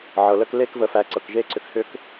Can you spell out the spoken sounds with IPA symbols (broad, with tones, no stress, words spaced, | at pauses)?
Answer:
ʕɤ˩lə˦k le˦kvə˨fæ˨ǀɤ˩k ʒe˦ǀʏ˨khʏ˦k